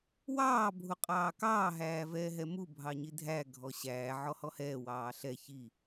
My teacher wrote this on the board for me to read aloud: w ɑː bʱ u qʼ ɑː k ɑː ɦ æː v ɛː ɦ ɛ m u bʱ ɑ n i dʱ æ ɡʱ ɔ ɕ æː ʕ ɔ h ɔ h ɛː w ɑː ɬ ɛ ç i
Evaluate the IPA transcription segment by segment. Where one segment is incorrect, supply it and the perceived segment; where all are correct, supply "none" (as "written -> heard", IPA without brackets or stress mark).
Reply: n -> ɲ